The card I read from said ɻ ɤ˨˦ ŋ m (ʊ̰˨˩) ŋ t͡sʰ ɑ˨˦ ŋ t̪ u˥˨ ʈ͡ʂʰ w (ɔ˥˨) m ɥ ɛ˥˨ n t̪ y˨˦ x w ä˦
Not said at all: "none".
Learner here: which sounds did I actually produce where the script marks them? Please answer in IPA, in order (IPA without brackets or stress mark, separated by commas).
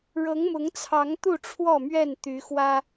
ʊ˨˦, ɔ˥˨